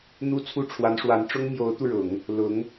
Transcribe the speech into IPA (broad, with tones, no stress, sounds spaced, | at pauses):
n̪ u˥˧ t͡sʰ u˥˩ ʈ͡ʂʰ w a˧˥ n ʂ w a˧˥ n ʈ͡ʂ ʊ˥ ŋ m j o˧˥ ʊ̯ t̪ u˧ ɻ ʊ˨˩˦ ŋ | l ʊ˧˥ ŋ